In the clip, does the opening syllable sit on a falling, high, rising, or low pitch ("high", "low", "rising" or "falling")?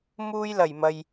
high